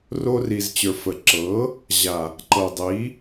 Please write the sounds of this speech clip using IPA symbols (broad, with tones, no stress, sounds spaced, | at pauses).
r o˧ r i˨ z t͡ɕ ə˞˨ f ə˨ ǁ ɤ˨˦ | ʑ a˨ | ǃ ɤ˨ dˤ i˨˦